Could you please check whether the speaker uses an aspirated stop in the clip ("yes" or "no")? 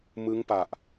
no